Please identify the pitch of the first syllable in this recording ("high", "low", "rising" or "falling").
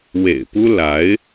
low